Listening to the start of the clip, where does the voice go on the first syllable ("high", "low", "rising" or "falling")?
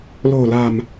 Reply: low